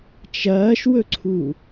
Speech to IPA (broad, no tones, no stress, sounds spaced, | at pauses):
t͡ʃ ɐː ʃ w ɵ ǀʰ u